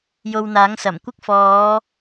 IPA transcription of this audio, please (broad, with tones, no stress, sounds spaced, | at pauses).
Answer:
j o˧ w n̪ aː˨˥ ŋ s ɐ˨˩ m kʷ ɪ˥ k̚ f ɔː˨˧